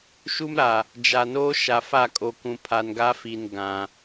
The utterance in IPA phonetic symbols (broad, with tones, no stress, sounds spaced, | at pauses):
ʃ u˦ m ɾ a˨ | d͡ʒ a˨ n oː˦ ʃ a˨ f a˦˨ kʼ o˨ k ũ˨ pʰ a˨ n ɡ a˦ f i˨ n ɡ ã˨